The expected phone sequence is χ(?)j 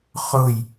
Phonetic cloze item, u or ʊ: ʊ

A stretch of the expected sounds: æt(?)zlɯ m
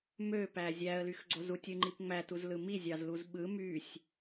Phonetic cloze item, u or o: u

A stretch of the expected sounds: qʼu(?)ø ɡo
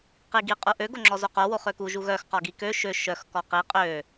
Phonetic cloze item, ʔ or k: ʔ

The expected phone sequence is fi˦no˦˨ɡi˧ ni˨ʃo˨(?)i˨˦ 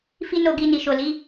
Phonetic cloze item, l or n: l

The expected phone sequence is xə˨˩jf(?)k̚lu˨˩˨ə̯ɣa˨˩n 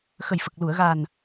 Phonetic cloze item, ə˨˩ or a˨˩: ə˨˩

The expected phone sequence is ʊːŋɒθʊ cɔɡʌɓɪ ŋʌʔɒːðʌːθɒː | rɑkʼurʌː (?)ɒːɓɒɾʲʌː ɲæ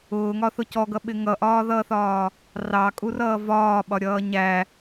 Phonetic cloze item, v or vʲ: v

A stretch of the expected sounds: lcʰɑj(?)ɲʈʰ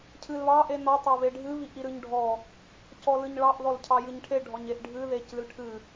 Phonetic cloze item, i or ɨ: ɨ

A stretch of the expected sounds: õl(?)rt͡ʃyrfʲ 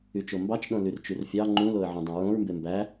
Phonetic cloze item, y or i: y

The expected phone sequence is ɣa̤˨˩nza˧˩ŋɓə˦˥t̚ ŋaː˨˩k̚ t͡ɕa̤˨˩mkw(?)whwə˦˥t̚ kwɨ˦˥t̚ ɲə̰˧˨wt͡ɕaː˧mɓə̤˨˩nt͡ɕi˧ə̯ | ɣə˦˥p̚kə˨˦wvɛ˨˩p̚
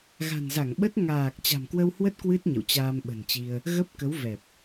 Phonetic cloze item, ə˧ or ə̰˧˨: ə˧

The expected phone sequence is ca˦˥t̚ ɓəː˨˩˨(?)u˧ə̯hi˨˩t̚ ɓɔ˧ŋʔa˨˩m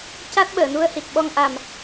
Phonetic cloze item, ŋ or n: n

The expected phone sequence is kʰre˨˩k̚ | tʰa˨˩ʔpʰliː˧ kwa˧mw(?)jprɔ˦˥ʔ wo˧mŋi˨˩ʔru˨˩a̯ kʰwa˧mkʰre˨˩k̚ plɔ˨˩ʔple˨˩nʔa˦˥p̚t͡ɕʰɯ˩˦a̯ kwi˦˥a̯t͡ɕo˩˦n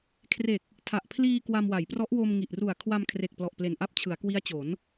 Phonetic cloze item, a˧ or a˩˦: a˩˦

